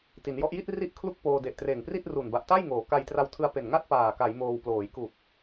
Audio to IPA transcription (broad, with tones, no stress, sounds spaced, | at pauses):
t i˩˦ n j ɔ˦˥ ʔ j i˥˩ t̚ r i˥˩ ʔ kʰ l u˥˩ k̚ p oː˧ d e˨˩ ʔ t r eː˨˩ ŋ p r i˥˩ t̚ r u˨˩ n b a˨˩ ʔ t a˥˩ j ŋ oː˩˦ k a˧ j t r a˧ w tʰ ɯ˧ a̯ p e˨˩ n ŋ a˥˩ t̚ p aː˨˩ k a˩˦ j m oː˧ w p l oː˩˦ j k u˨˩ k̚